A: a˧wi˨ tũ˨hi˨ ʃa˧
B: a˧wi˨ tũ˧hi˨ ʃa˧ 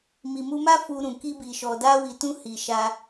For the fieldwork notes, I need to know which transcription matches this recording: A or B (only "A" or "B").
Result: B